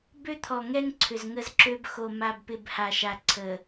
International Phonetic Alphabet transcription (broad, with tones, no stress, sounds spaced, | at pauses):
b ø˦ t̪ʰ ɔ˨ ŋ ɛ˦ ŋ ǀʰ ʏ˨ z ŋ ə˦ z ǁ ø˦ b x o˨ m a˨ b p ɪ˨ b h a˨ ʃ a˨ ǀʰ ə˨